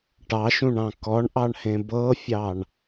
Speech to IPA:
ʈ ɑ ʃ ũ ɳ ɑ̃ k ɔ ɳ ʔ ɑ ɳ h ẽ b ɤ fʲ ɑ ɳ

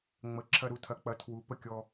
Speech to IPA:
ŋ͡m ə˩˥ ǁʰ ɐ˧ ɾ u˧ tʰ ɐ˩˥ k͡p ɐ˩˥ tʰ w u˩˥ p ə˧ kʲ ɔ˧

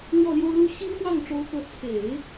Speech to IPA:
ɻ w ɔ˥˩ l j o˥ ʊ̯ l u˥ ɕ i˥ ŋ x w ɑ˥˩ ŋ ʈ͡ʂ o˧˥ ʊ̯ k ɤ˧˥ t͡sʰ e˨˩˦ ɪ̯

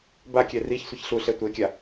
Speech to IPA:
b a kʲ ɛ r i ç sʷ ʌ ç ɬ u ɬ ɛ tʷ e kʲ a

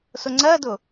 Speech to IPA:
s ʊ ŋ͡ǀ ɜ d ʊ

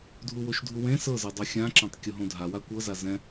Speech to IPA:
dʱ u w o ʃ dʱ u w ẽ s ɤ z ɤ dˤ a xʲ ã ǁ ã tˤ kʲ o ɦ õ dʱ a w a kʷ ɤ z a z ɛ̃

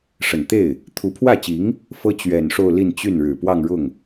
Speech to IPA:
ʂ ə˨˩ n t̪ e˥˩ ɪ̯ | t̪ʰ u˧˥ pʰ w ä˥˩ t͡ɕ i˧˥ ŋ | f ɤ˥ t͡ɕ ɥ ɛ˨˩ n ʂ o˥˧ ʊ̯ l i˥˧ n t͡ɕ y˥˩ n ɻ ɻ̩˨˩ p w ɑ˥˧ ŋ ɻ ʊ˥˩ ŋ

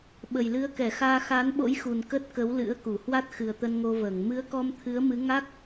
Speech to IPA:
ɓ ə˨˩ j l ɨ˨˦ ə̯ k ɛ˧˩ x aː˧ x a˨˦ n ɓ o̰˧˥ j x u˨˩ n k ə˦˥ t̚ k ə˨˦ w l ɨ̰˧˥ ə̯ k u˧˩ h w a˦˥ t̚ x ɨ˨˩ ə̯ t̪ ə˧ n ŋ o˧ v əː˧˩ ŋ m ɨ˨˦ ə̯ k ɔ˧ m t̪ʰ ɨ˨˦ ə̯ m ɨ˨˦ ŋ a˦˥ k̚

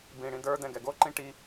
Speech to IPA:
b ĩ ɽ ĩ d ə˞ d ɛ̃ ɡ ɛ ɡ o ǃ ĩ ʈ i

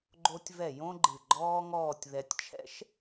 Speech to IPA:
ɡ͡ǃ o˧ tʲ v ɛ˧˩ j õ˥ ɡ͡ǃ ɨ˧˩ ɡ͡ǃ ɔː˥ ŋ ɔː˥˧ tʲ ð ɛ˧ tʲ t͡ʃʰ ɛ̰˥ ʃ

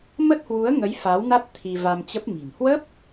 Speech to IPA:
m ə˦˥ t̚ h w u˨˦ ə̯ ŋ ə˨˦ j f a˨˦ w n a˦˥ t̚ t̪ʰ i˧ v a˧ m t͡ɕ ə˦˥ p̚ m i̤˨˩ n h w ə˦˥ p̚

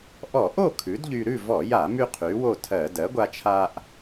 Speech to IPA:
ʔ ɔ˧˩˧ ʔ o˥˨ kʰ ʉ˩˥ d ʎ y˧ ɾ ʉ˥˨ v ɔ˧˩˧ j a˧˩˧ m y˧ qʰ y˩˥ w o˥˨ tʰ ɜ˧˩˧ d ɜ˩˥ ɡʷ a˧ t͡ʃʰ a˧ ʔ

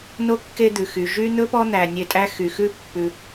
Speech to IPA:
n o˥ kː e˦ d̪ ʉ˩ x y˩ ʒ y˦ n̪ ɵ˥ p ɔ˦ n̪ æ˨ nʲ e˨ tʼ æ˦ x y˩ x ʉ˦ pː ʉ˨

